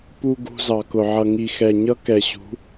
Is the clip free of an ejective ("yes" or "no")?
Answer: yes